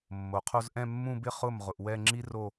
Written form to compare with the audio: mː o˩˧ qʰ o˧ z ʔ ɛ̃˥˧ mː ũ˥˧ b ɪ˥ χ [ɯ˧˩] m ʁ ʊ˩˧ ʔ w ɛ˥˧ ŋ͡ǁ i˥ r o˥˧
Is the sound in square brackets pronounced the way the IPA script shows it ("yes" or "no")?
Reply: no